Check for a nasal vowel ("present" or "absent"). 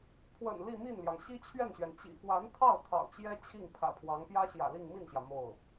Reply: absent